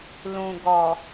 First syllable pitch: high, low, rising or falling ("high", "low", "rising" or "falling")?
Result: low